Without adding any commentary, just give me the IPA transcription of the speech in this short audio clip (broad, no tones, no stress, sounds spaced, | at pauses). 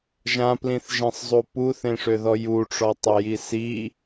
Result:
ʒ ã p l ĩ θ ʒ ẽ sˤ zˤ u p u θ ẽ ʂ ø ð ɔ j u ʈ͡ʂ ɔ tˤ ø j i s i